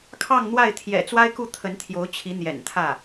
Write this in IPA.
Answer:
kʰ ɑ˥˧ ŋ n̪ w a˥˩ ɪ̯ t̪ʰ j ɛ̰˨˩ t͡s w a˥ ɪ̯ k u˥˩ t̪ʰ ə˧˥ n t̪ʰ j o˧˥ ʊ̯ t͡ɕʰ i˧˥ n̪ j ɛ̰˨˩ n t̪ʰ ä˥˩

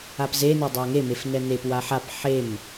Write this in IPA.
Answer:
a p z e n e dˤ a ŋ e m e f n ɛ n e p w a ħ a p ħ e m

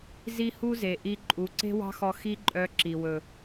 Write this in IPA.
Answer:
z i˦ h u˦ z e˨ ʔ i˧ ǃʼ u˨˦ ǀ e̤˦ w ɑ̤˦ x ɔ˧ x i˦ ǃʼ œ˧ ǁ i˨ w ɵ˨

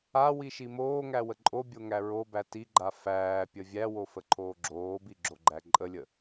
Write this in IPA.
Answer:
a w i ʃ i m oː ŋ æ w ə ǃʼ o bʲ o ŋ æ ɹ o b æ t i ɡ͡ǃ a f æː pʲ ə vʲ æ w o f ə ǃʰ oː ɡ͡ǁ oː b i ɡ͡ǁ o ɡ͡ǃ æ ǃʼ ə lʲ ə

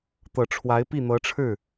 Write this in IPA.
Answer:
t̪ ɤ˨˩ ʈ͡ʂʰ w a˧˥ ɪ̯ p i˥˩ n̪ ɤ˧˥ ʈ͡ʂʰ ɻ̩˥˩

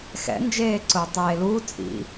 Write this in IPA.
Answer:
x ɛ̰ n d͡ʒ eː ǀ ʊː tˤ eː l uː t͡sʼ ḭ

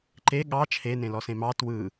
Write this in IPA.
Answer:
ǃ e ɠ ɑ t͡ʃʰ e n ẽ l ɔ s ẽ m ɑ t w ɯ

